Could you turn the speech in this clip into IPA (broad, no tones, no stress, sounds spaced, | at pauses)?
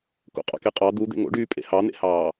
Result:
k o̰ qʼ ɑ̰ k e qʼ ɑ d̪ u d̪ ḛ ŋ o̰ ɖ yː pʼ ḛ h ɑ n̪ ḛ h ɑː